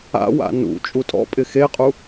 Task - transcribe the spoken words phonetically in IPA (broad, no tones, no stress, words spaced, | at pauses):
a̰ wa̰nṵ t͡ʃʼutʼɔ̰pʼɪ xeqʼu